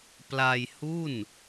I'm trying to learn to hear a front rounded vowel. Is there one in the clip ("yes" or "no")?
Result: no